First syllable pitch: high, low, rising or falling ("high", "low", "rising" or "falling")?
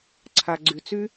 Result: low